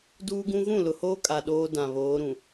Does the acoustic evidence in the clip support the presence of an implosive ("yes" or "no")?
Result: yes